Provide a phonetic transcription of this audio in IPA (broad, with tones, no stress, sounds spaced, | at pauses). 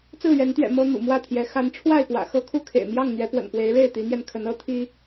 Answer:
t͡s ɹ̩˥˨ ɥ ɛ˨˦ n t̪ ɥ ɛ̰˨˩ m ɤ˦ n̪ ṵ˨˩ m w ä˥˨ t̪ʰ j ɛ˨˦ x a˨˦ n ʈ͡ʂʰ w a˥˨ ɪ̯ p w ä̰˨˩ x ɤ˦ kʰ u˥˨ kʰ ḛ˨˩ ɪ̯ m j ɑ˥˨ ŋ n̪ ɥ ɛ˨˦ p w ə̰˨˩ n p w e˨˦ ɪ̯ ɻ e˥˨ ɪ̯ t̪ i˨˦ n̪ j ɛ˧ n kʰ ə˨˦ n ɤ˦ t̪ʰ i˦